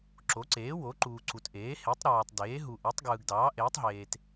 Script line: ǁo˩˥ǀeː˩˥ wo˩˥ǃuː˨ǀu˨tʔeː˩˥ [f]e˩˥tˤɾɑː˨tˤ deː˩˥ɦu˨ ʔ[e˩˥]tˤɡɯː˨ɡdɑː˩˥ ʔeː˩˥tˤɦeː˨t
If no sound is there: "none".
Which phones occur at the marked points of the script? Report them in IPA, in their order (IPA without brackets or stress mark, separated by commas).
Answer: h, e˩˥